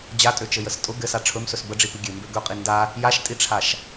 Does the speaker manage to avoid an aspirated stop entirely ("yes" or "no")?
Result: no